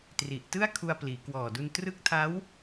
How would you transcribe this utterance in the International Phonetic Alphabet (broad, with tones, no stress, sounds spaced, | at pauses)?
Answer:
t r i˨˩ ʔ t ɯ˥˩ a̯ kʰ u˧ a̯ p l iː˩˦ k w ɔː˨˩ d u˧ n t r ɯ˦˥ k̚ tʰ a˦˥ w